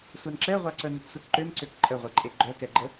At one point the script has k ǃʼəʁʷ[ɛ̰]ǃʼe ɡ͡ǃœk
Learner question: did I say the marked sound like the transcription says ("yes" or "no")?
no